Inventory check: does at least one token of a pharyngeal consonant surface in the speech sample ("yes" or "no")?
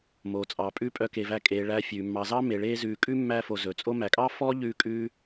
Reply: no